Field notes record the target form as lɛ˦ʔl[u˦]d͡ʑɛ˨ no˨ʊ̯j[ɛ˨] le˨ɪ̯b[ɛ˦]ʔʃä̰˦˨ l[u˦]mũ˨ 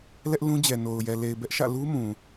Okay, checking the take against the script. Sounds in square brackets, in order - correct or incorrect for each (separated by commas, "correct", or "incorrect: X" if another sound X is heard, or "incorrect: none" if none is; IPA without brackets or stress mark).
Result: incorrect: ũ˦, correct, correct, correct